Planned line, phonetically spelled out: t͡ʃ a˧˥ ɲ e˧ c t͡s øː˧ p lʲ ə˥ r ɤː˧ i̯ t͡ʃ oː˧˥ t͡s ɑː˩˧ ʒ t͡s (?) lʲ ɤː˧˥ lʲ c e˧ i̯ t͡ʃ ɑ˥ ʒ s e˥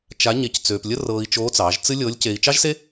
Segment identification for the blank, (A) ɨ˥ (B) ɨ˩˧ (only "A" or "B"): A